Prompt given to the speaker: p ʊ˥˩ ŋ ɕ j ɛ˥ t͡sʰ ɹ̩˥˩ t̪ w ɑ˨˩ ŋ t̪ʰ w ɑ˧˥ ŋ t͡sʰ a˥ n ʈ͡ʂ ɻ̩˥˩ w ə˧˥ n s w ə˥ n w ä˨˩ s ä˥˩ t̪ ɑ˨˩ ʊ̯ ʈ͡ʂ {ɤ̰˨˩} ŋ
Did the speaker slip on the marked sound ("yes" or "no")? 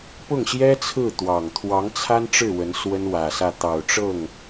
yes